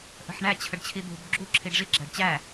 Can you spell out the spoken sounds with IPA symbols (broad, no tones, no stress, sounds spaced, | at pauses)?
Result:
ʔ ə̤ ħ ɳ æ t͡ɕʰ ə ɖ t͡ɕʰ i d̪ ṳ b ɡ͡ǁ u ǁʰ i ɖ ʐ i ɡ͡ǁ æ ɖ t͡ɕ æ